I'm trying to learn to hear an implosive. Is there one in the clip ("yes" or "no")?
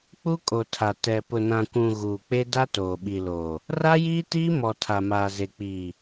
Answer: yes